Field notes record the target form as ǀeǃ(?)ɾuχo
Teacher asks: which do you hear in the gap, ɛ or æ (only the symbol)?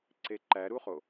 æ